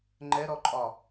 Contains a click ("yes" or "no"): yes